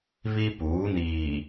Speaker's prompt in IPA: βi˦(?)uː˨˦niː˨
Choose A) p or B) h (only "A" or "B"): A